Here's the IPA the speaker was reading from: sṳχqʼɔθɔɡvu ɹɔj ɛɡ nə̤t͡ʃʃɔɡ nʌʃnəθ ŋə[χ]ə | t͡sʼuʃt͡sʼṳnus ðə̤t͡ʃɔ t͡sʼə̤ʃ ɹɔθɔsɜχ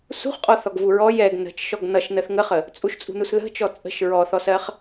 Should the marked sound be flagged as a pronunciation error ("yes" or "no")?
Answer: no